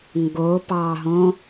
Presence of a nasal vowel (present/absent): present